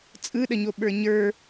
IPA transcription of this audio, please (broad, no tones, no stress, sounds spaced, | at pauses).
t͡sʼ ɯ ɗ ə ɲ o ɓ ə˞ ɲ ə˞